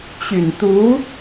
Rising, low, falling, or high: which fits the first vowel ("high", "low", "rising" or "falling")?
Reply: low